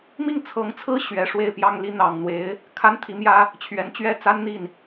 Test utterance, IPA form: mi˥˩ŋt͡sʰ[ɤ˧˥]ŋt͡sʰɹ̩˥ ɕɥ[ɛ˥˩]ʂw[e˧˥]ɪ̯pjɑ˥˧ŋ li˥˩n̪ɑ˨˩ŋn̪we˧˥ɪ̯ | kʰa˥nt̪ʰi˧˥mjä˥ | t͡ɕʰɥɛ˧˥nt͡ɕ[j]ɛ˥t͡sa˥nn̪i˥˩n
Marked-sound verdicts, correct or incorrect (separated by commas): correct, incorrect, incorrect, incorrect